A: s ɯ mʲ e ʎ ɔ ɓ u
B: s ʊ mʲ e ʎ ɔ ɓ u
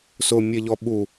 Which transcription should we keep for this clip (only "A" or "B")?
B